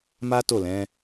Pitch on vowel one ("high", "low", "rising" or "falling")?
high